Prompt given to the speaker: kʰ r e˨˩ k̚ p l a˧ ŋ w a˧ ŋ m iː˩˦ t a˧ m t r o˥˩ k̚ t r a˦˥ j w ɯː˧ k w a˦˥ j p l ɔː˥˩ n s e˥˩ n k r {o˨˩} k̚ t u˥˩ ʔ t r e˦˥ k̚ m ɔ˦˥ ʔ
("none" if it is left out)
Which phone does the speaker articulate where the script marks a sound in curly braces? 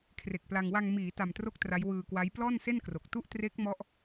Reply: o˨˩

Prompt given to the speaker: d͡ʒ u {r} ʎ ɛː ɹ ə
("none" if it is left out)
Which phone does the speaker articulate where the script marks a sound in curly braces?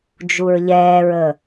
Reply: ɹ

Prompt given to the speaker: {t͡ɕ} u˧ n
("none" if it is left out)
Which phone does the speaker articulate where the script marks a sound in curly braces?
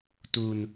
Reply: t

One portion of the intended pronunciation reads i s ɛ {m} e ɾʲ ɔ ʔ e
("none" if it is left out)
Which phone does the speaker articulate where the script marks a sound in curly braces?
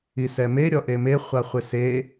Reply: m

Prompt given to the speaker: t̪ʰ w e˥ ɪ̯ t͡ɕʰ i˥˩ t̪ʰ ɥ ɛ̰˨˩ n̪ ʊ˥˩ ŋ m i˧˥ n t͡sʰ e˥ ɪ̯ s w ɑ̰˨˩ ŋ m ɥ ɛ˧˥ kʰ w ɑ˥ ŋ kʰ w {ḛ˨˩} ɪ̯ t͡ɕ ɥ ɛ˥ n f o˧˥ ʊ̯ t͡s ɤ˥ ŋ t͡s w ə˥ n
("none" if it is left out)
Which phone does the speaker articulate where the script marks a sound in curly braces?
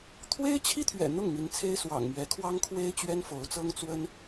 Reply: e˥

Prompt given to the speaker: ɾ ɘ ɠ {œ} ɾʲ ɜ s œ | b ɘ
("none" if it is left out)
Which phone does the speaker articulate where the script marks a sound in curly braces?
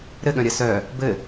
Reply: œ̃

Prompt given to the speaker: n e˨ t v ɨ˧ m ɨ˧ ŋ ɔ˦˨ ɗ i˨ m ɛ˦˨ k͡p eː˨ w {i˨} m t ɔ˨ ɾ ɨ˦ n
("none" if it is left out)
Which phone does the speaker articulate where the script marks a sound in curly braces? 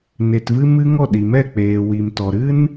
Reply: i˨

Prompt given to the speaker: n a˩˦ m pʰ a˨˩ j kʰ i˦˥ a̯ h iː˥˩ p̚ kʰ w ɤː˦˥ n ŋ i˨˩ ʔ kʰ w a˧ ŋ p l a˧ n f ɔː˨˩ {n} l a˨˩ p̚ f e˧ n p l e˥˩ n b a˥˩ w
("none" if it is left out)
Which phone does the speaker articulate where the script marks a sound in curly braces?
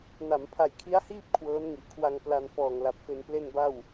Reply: ŋ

